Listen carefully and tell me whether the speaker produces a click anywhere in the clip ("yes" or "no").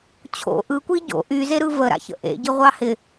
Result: no